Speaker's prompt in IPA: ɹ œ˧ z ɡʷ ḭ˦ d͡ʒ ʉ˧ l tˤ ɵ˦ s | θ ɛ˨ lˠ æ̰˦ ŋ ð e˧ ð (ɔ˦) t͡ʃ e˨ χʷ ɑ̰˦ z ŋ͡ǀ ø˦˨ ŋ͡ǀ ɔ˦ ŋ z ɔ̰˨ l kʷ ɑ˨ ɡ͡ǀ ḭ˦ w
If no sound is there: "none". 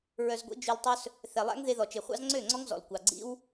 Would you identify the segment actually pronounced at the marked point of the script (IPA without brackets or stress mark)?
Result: ɔ˨